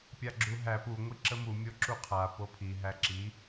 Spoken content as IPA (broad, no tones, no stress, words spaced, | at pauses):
pʲaɡ͡ǁuɦæ pu ŋʷiǁəmu mʲoǁuqʰa popʰi ɦæǁi